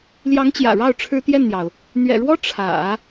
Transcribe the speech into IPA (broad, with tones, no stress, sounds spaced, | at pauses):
l j ɑ˧˥ ŋ t͡ɕ j ä̰˨˩ ɻ ɑ˥˩ ʊ̯ ʈ͡ʂʰ ɻ̩˥ t̪ j ɛ˥˩ n n̪ j ɑ˩ ʊ̯ | n̪ ɥ ɛ̰˨˩ ɻ w ɔ˥ ʈ͡ʂʰ ä̰˨˩˦